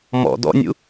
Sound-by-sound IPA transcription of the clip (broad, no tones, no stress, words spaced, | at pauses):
mɔ̰ dɔ̰nʲṵ